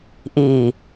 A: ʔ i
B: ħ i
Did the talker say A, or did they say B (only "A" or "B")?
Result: A